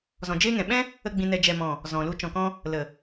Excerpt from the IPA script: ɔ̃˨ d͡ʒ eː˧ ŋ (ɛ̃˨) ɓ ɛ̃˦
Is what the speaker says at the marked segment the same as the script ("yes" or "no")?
yes